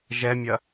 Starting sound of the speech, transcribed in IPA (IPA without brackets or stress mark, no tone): ʒ